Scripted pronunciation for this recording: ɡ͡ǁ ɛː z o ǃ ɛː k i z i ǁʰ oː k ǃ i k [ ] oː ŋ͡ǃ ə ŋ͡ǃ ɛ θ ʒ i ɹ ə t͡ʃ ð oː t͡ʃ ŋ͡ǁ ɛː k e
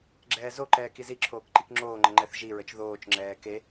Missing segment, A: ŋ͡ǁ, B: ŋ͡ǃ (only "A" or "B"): A